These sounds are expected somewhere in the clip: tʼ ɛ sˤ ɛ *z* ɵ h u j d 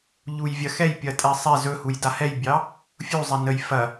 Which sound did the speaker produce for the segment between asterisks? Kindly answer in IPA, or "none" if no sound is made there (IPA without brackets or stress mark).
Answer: z